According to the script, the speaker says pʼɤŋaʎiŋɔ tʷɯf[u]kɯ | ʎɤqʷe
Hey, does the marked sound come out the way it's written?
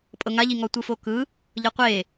no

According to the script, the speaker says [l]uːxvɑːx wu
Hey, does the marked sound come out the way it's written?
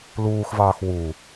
yes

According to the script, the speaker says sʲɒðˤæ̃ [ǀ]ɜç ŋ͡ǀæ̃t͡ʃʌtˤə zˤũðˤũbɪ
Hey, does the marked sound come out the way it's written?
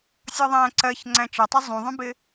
yes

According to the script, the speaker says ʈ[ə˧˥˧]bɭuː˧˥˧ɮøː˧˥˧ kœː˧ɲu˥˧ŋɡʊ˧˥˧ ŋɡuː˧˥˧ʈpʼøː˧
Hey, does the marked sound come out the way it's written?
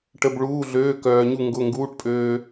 yes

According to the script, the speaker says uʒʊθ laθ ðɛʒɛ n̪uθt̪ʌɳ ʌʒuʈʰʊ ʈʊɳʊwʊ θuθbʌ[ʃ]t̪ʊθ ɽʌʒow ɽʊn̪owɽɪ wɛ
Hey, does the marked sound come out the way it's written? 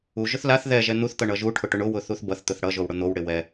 no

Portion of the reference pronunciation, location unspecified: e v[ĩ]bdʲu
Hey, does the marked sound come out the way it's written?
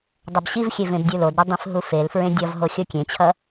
no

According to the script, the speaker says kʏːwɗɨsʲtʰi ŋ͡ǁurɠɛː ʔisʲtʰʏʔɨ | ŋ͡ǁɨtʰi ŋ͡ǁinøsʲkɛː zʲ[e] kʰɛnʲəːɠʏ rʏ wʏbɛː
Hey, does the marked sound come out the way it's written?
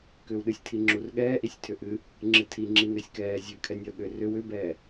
no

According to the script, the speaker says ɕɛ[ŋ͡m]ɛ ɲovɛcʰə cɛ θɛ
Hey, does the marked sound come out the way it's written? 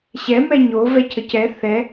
no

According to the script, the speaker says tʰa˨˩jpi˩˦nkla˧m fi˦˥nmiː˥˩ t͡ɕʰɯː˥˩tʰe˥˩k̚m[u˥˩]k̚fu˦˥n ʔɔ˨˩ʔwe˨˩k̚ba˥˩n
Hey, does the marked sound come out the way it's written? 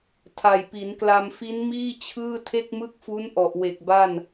no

